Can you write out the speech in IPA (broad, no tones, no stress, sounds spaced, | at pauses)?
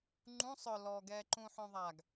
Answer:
ŋ͡ǃ ũ sˤ œ l ɔ ɡ ɛː ǃ ũ ħ œ̃ ðˤ a ɡ